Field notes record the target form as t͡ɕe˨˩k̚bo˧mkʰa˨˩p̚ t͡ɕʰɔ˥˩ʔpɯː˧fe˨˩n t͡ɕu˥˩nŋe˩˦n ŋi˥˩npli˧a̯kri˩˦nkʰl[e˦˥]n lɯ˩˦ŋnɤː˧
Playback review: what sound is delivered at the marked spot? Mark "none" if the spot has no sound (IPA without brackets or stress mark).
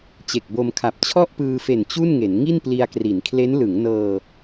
e˦˥